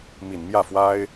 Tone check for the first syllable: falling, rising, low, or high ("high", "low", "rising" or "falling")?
low